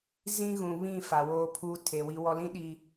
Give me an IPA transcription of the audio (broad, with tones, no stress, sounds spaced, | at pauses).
z ĩ˦ ɣ ũ˨ β ĩ˦˨ f a˨ w oː˦ pʰ u˦ tʰ e˨ w i˦ w ɔ˦ l ĩ˦ ɗ i˨